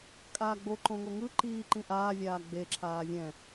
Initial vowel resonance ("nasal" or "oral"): oral